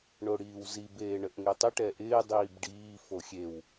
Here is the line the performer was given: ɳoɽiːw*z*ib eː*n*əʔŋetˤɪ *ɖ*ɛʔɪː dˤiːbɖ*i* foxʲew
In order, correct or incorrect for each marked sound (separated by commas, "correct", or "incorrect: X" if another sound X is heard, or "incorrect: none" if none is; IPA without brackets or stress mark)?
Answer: correct, incorrect: ɳ, incorrect: ʈ, incorrect: iː